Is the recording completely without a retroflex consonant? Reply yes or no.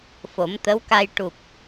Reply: no